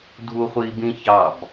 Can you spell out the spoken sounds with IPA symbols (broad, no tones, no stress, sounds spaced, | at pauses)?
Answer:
dʱ u χʷ i b ĩ ç ɑ b